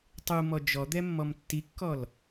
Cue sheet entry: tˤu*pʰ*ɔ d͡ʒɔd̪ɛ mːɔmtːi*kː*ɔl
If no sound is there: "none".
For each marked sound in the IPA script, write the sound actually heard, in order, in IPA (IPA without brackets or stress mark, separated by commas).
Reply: m, kː